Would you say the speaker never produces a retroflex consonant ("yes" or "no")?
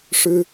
no